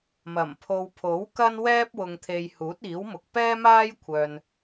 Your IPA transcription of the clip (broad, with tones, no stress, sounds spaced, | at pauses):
m ɐ˨˩ m pʰ o˨ w pʰ o˨˥ w k ɐ˥ n w ɛː˥ p̚ w ʊ˨ ŋ t̪ʰ e˨ j h uː˨˥ t̚ iː˨˥ w m ʊ˨ k̚ p ɛː˥ m aː˥ j kʷʰ œː˨ n